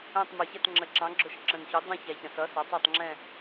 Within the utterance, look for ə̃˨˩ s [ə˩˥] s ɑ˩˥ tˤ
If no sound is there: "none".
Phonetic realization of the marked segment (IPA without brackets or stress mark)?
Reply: ʌ˩˥